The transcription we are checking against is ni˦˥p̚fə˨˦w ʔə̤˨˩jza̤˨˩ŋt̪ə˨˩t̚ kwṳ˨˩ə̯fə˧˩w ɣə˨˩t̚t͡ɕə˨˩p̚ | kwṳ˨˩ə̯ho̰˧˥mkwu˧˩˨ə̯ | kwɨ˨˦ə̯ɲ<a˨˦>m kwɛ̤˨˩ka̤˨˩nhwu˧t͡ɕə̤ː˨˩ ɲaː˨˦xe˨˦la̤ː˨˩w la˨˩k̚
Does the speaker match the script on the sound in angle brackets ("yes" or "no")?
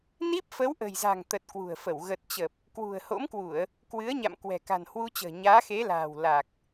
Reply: no